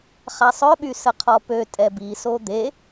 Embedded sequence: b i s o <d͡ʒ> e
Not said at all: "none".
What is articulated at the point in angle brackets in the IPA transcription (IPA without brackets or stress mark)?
d̪